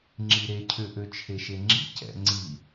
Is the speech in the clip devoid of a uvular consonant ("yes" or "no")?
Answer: yes